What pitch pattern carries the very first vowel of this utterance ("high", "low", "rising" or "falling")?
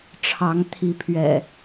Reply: rising